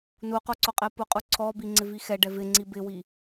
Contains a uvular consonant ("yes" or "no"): yes